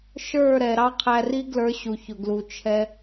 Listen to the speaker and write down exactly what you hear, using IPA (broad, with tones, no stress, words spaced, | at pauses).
ʃə˞˦˨ɾɛ˨ ɾɑ˦qʰæ˧ri˦ ɡlə˞˧ɕu˨ çʊ˨ɡlu˨ t͡ʃʰɛ˧